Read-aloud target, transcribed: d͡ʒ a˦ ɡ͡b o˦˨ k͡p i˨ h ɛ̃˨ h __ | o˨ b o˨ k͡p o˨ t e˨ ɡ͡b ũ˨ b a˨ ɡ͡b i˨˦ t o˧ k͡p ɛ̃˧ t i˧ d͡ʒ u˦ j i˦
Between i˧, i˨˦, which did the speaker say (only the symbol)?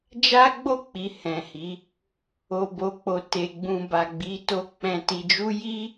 i˨˦